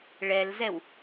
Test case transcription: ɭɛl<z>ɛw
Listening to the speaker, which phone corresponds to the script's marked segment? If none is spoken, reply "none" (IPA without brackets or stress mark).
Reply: z